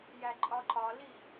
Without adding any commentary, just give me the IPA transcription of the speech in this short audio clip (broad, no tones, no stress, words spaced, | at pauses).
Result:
jæǃʼɒǃɒli